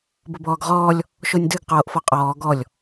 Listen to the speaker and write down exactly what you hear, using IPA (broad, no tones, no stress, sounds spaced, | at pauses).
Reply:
b ʊ b ɔː ɡ ʁ ɔː lʲ | ʃ o nʲ d ɨ ɡ q oː ʔ f ɔ qʼ ɔː ɡ ɔ lʲ